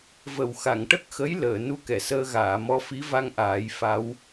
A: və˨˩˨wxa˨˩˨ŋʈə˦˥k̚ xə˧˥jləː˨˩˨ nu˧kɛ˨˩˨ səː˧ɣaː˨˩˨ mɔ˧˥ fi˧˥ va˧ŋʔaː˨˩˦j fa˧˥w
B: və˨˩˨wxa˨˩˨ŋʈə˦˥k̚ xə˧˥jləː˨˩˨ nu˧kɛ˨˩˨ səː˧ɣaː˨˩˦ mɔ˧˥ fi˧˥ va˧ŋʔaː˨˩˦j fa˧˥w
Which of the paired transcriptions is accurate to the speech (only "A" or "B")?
A